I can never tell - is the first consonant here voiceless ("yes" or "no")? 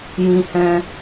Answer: no